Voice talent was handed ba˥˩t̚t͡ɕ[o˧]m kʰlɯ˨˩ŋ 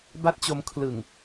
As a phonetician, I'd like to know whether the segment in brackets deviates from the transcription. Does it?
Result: no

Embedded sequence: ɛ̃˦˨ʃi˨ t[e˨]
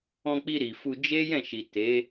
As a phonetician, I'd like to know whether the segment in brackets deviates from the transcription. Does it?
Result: yes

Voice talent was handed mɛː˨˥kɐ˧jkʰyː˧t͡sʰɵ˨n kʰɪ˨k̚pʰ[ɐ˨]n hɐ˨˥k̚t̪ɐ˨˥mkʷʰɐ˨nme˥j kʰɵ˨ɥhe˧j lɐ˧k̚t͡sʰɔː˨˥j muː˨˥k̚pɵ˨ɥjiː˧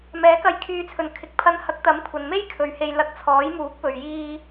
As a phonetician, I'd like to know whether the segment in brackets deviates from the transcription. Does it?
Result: yes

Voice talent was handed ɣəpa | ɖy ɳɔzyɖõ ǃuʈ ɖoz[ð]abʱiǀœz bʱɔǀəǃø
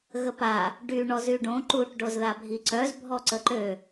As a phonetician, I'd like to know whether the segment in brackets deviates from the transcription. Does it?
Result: no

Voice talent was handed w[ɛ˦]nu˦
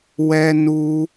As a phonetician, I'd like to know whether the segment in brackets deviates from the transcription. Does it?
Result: no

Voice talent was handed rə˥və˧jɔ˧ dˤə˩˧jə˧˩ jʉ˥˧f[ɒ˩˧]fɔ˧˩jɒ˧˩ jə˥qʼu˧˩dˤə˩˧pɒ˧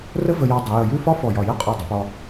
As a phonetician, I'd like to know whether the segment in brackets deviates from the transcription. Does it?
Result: yes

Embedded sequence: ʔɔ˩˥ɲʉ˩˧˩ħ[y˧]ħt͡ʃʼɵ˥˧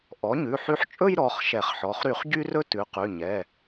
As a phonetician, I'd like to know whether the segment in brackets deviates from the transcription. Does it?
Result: no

